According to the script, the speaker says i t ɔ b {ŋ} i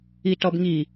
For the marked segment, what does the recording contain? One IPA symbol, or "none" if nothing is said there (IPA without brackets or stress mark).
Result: ŋ